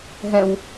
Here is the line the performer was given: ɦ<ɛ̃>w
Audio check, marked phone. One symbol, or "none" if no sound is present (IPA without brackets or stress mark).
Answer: ɛ̃